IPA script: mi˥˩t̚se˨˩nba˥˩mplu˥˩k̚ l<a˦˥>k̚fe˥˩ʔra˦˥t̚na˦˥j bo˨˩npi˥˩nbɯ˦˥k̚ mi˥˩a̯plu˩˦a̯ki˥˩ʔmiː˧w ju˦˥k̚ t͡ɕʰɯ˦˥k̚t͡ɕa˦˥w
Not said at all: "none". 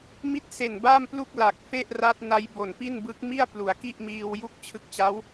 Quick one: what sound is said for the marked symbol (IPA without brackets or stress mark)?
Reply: a˨˩